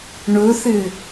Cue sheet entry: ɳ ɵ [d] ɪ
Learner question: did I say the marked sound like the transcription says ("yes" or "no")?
no